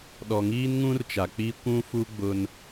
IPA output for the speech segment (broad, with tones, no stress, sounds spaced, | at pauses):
ɗ ɔ˨ ŋ iː˦ n ŋ ũ˦ r t͡ʃ a˨ k͡p i˦ kʷ ũ˦ f u˦ ɡ͡b ʊ˦ n